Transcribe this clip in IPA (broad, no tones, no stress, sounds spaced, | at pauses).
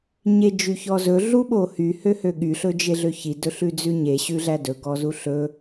ɲ e d͡ʒ y ç ɔ z ɵ ɮ u ɓ o h y h ø h ø ɠ y ɬ ɵ d͡ʒ e ɮ ø ç i d ɵ ɬ ʉ d͡z ʉ ɲ e ɕ ʉ ɮ æ d ɵ ɡ ɔ z u ɬ ɵ